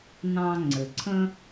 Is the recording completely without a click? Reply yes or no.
no